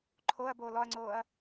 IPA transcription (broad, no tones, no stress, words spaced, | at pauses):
ǃʰoɐ̯ boːlɔɐ̯ŋ͡ǀoːɐ̯